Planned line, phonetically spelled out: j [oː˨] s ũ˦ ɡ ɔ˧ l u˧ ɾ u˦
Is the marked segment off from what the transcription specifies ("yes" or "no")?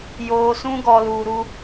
yes